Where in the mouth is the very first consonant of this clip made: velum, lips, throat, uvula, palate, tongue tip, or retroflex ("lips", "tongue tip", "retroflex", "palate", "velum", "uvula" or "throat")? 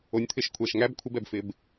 tongue tip